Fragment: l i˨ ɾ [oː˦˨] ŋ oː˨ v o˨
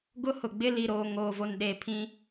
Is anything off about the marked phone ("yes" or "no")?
yes